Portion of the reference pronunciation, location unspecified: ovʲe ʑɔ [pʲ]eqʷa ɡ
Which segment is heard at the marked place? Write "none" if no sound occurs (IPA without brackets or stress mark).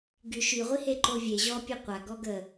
pʲ